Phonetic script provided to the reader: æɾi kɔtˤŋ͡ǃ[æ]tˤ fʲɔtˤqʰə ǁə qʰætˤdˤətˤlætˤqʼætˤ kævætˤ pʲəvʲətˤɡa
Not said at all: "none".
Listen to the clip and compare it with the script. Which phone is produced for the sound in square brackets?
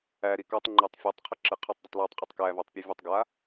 æ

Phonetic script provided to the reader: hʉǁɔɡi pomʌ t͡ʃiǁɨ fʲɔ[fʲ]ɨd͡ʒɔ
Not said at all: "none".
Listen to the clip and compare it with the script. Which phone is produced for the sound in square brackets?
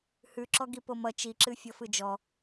f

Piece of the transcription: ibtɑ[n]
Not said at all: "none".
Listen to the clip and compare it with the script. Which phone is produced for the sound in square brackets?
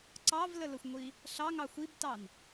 n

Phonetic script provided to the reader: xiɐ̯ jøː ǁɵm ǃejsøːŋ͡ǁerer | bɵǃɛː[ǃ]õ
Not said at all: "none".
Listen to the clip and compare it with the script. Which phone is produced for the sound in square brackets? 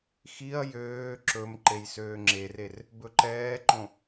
ǃ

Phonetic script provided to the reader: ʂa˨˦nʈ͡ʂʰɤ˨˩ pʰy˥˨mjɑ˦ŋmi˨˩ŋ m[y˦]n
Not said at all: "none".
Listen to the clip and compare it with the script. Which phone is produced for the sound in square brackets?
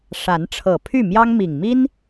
i˦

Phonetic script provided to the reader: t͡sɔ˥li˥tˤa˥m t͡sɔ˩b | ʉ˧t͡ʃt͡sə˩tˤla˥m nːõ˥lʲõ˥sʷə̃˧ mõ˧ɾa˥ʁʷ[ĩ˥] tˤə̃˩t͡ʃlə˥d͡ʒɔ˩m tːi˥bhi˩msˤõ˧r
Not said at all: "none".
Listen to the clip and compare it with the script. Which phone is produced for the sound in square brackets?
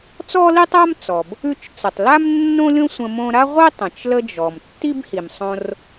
i˥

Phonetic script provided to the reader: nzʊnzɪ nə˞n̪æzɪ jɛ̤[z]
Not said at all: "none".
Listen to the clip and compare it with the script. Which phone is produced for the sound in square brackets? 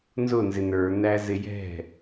none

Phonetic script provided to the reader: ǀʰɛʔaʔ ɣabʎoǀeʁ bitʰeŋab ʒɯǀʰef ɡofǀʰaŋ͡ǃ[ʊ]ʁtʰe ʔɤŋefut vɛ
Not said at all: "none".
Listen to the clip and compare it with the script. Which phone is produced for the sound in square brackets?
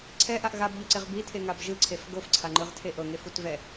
ɯ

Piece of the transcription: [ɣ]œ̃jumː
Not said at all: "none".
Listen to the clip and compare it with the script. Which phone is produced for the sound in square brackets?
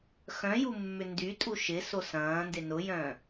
x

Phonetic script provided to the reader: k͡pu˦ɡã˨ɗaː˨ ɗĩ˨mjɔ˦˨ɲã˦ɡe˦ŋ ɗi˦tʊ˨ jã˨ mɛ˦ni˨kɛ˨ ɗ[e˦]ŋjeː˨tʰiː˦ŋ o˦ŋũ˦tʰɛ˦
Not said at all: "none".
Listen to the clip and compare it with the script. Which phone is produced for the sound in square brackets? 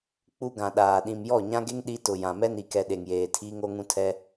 e˨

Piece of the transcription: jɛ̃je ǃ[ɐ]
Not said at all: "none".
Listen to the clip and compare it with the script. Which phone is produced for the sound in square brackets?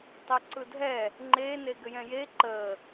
ə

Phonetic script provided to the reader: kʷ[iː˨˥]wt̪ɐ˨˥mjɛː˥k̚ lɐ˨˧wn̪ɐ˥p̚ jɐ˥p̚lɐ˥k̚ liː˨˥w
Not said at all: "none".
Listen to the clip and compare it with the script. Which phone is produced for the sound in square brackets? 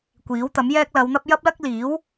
iː˨˥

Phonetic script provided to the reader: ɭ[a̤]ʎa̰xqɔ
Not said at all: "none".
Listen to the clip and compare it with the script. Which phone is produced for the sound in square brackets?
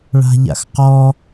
a̤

